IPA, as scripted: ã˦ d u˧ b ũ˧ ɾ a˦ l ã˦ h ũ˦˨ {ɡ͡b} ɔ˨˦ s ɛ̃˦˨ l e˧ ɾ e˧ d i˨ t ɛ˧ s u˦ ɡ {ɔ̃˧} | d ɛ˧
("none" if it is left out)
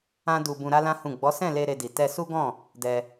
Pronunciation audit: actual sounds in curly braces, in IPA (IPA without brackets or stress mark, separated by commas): ɡ͡b, ɔ̃˦˨